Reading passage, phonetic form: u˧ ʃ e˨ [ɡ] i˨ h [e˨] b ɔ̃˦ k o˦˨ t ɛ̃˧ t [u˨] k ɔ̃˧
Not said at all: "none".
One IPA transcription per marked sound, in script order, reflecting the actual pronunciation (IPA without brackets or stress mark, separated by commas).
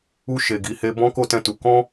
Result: ɡ, e˧, u˨